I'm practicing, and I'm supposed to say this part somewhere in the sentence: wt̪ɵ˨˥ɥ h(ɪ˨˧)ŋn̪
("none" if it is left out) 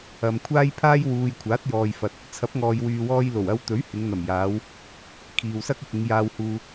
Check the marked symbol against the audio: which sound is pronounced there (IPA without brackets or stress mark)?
ɪ˨˧